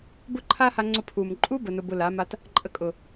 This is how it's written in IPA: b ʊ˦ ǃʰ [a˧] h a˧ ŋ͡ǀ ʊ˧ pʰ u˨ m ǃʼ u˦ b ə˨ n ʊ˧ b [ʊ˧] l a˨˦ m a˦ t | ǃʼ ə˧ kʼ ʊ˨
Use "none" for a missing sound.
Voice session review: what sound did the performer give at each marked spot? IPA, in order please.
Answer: a˦, ʊ˧

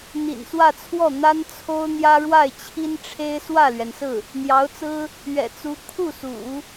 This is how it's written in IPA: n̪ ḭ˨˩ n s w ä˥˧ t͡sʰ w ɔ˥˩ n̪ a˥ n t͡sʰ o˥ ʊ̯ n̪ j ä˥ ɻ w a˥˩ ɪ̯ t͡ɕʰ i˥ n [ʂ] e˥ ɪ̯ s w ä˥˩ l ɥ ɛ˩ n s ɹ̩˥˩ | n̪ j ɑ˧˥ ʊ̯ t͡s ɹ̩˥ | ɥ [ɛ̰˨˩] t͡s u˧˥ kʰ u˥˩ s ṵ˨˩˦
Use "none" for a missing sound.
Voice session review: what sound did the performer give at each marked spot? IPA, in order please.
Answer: ʈ͡ʂʰ, ɛ̰˨˩

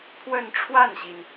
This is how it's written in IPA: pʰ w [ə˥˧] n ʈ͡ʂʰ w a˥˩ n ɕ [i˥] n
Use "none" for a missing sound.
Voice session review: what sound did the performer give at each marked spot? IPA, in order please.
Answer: ə˥˧, i˩

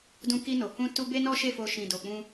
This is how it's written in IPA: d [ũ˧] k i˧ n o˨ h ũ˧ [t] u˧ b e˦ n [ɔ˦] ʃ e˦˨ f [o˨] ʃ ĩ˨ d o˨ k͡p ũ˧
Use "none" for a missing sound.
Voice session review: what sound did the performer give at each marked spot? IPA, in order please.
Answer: ũ˧, t, ɔ˦, o˧

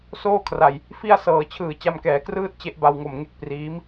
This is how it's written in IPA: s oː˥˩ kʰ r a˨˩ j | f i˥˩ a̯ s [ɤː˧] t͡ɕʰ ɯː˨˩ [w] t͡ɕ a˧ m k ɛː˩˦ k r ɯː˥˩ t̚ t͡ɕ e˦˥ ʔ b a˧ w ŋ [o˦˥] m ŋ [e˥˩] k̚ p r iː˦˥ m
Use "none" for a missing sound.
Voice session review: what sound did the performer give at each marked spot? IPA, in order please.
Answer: ɤː˩˦, none, o˨˩, e˥˩

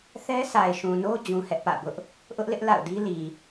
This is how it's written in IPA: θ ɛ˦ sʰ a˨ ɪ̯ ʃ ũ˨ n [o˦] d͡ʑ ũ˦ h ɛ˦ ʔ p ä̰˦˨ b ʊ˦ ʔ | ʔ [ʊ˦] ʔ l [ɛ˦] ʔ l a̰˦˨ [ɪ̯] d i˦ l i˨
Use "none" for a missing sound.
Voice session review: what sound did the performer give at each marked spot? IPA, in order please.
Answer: o˦, ʊ˦, ɪ˦, ʊ̯

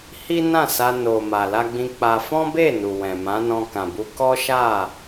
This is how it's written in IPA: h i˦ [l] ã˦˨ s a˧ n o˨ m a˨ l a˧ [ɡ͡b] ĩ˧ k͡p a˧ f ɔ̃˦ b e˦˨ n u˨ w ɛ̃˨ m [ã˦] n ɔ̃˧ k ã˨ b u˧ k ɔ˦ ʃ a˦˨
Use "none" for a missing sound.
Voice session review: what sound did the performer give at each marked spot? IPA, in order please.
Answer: n, ɡ͡b, ã˨˦

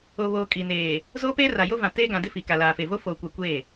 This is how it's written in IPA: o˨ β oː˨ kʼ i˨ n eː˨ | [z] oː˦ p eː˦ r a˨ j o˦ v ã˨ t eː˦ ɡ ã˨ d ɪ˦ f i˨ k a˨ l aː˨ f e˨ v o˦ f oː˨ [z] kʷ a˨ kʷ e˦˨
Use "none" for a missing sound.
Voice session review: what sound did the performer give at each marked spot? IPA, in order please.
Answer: z, none

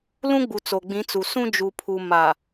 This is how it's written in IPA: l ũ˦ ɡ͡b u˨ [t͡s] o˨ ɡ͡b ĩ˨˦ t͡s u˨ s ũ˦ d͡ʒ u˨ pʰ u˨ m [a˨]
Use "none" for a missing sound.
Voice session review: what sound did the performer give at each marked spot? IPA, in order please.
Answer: t͡s, a˨

